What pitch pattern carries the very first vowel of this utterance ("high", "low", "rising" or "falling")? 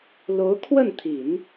rising